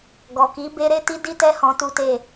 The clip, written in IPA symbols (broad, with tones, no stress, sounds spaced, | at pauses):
ɡ ɔ˨ k i˨˦ b e˦ ɾ e˦ t i˦ d i˦ t ɛ˦ h ɔ̃˧ t u˦ t e˦˨